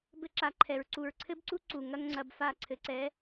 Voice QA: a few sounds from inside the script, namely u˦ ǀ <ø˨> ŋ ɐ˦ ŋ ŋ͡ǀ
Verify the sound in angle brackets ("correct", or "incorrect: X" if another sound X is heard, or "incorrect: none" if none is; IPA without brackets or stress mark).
incorrect: u˨